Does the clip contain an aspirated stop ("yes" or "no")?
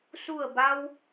no